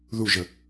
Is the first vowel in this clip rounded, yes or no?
yes